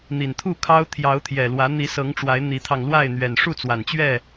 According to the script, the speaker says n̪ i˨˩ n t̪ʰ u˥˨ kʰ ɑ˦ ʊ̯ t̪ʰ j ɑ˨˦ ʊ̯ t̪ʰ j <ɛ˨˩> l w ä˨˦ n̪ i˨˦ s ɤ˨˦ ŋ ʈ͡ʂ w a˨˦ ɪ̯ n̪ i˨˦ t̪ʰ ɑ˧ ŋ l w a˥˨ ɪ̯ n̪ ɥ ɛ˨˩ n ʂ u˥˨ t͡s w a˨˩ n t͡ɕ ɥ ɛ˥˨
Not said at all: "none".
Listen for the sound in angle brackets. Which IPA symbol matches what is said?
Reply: ɛ˨˩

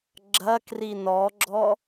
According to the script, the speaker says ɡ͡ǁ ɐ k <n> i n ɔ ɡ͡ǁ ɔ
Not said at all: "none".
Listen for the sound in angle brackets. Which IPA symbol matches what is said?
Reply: r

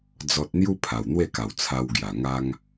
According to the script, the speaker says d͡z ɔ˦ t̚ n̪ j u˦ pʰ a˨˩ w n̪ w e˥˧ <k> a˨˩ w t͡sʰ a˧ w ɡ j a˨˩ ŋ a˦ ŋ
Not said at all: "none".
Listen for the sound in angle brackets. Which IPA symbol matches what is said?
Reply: k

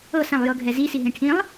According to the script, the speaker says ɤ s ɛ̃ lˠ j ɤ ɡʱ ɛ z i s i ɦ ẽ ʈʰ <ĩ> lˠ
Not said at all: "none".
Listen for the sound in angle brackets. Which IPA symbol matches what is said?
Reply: ĩ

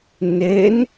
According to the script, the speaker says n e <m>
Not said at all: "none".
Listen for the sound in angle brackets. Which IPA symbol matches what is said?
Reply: n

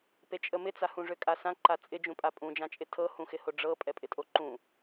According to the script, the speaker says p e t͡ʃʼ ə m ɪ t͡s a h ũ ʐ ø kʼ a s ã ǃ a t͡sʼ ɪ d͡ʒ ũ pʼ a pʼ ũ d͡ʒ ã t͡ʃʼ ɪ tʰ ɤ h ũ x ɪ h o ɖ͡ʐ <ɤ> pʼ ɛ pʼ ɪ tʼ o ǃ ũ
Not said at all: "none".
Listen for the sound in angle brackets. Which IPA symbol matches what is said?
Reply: ɤ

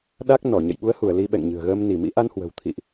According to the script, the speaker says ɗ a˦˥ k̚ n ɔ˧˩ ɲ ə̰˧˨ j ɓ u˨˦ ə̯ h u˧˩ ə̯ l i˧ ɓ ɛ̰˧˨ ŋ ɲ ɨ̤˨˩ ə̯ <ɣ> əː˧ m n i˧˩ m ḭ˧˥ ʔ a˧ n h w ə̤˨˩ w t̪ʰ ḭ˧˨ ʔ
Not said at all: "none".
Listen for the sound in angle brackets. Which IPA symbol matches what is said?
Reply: ɣ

